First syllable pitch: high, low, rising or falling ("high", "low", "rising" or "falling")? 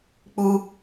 high